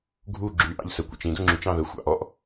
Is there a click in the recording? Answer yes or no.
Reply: yes